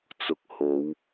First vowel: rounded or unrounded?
rounded